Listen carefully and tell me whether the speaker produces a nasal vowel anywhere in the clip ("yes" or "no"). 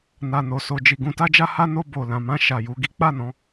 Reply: yes